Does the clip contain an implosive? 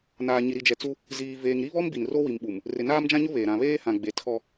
yes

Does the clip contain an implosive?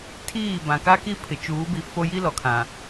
no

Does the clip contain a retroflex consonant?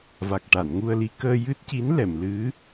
yes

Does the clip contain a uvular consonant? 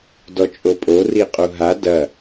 yes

